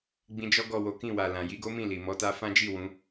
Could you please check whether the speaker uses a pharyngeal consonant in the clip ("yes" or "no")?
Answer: no